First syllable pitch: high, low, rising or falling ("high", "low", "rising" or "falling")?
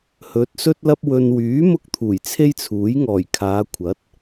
rising